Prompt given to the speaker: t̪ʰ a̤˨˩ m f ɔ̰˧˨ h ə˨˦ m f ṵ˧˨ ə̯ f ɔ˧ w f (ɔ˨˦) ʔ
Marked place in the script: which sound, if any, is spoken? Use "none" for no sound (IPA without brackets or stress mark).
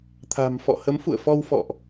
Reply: ɔ̰˧˨